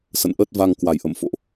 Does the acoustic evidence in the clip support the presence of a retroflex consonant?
no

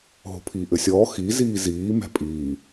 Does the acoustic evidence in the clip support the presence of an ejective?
yes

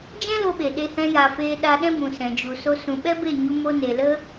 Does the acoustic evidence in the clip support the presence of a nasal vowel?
yes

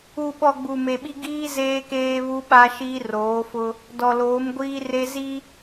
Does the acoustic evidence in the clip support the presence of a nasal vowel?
no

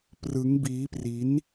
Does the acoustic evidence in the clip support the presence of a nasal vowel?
no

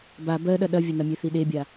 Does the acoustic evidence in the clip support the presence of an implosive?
yes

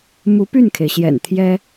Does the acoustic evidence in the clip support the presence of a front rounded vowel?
yes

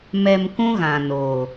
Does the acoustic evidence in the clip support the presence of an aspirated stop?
no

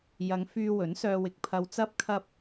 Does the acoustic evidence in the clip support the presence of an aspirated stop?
yes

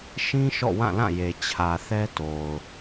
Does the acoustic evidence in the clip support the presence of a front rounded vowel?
no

